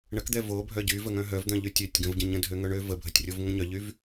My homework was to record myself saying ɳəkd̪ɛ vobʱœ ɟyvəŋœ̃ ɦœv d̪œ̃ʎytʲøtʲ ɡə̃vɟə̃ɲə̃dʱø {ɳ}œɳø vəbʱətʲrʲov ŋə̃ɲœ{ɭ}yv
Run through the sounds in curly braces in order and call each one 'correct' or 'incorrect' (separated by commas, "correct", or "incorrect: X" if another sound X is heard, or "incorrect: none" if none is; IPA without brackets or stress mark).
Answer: incorrect: ŋ, incorrect: ʎ